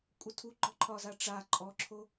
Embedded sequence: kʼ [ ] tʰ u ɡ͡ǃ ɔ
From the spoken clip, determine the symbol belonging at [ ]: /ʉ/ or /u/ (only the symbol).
u